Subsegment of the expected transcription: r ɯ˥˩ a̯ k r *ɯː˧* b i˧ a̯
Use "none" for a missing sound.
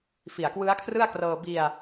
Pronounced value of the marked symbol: ɤː˧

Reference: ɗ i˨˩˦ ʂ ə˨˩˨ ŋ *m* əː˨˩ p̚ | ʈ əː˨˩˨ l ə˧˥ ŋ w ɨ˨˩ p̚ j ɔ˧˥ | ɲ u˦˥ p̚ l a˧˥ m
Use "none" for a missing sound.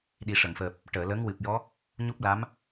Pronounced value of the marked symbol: f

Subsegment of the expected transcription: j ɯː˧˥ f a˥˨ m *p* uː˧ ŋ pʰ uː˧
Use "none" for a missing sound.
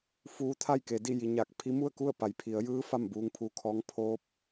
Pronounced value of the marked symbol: b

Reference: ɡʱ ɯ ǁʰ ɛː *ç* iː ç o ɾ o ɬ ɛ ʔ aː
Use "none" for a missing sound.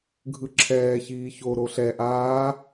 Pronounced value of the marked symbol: ç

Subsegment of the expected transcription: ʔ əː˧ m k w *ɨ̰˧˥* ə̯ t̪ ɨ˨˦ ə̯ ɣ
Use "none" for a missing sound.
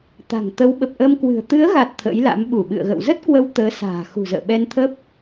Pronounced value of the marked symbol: ɨ̤˨˩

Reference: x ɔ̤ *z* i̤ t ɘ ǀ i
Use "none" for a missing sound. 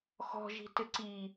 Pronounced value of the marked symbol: ʒ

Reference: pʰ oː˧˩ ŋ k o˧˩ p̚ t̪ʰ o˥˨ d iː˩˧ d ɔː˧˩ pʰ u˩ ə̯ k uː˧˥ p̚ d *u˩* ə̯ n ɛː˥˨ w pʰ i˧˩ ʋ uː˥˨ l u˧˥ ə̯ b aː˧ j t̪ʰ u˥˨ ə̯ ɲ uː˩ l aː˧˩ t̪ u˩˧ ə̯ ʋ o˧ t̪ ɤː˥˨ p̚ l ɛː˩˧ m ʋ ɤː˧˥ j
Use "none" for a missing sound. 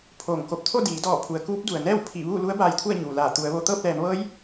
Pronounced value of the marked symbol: u˩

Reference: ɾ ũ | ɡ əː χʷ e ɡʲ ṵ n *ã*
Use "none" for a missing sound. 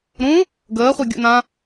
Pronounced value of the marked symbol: ã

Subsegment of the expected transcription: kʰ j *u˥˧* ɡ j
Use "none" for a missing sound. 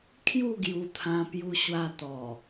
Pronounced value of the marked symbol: u˥˧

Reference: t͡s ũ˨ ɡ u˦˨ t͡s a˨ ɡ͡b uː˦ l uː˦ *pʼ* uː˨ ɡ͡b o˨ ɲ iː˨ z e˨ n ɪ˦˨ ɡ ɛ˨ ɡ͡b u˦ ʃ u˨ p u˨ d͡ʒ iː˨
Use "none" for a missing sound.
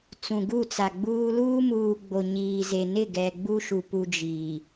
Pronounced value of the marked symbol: m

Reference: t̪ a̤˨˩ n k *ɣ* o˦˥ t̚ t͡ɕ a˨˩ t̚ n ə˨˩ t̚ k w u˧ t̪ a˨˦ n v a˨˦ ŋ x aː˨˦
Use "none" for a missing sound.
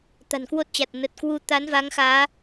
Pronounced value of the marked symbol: w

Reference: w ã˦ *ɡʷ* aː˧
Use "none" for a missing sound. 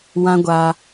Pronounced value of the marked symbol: ɡʷ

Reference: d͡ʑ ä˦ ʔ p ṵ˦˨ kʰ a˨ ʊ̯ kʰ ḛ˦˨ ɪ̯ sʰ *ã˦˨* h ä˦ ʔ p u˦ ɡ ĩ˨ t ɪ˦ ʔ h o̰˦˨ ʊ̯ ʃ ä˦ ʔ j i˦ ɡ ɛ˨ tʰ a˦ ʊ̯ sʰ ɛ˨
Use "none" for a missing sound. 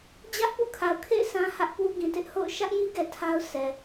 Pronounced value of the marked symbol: ã˦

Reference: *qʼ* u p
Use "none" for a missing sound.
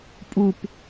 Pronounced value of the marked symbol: pʼ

